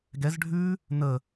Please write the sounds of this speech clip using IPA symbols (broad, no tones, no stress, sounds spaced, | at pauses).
ɡ ɛ z ɖʱ ʉ | n ə